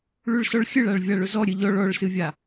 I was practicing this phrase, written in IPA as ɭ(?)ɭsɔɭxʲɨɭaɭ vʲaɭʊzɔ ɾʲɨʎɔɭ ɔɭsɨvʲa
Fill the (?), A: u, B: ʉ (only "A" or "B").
B